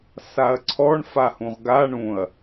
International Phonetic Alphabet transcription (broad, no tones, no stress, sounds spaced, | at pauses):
s a ɐ̯ ǀʰ ɔ ɳ f a h ũ ʁ ɡ a ɳ ũ ɐ̯